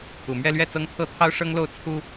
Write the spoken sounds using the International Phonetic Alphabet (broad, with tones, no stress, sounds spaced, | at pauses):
u˨˩ m ɥ ɛ˥˧ l ɥ ɛ˥˩ t͡s ɤ˥ ŋ t̪ʰ ɤ˥ t̪ʰ ɑ˥ ʊ̯ ʂ ɤ˥ ŋ l o˥˩ ʊ̯ t͡sʰ u˥